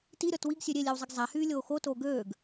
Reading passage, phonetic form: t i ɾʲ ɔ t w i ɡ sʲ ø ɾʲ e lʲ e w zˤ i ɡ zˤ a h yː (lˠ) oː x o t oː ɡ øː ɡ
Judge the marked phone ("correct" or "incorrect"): incorrect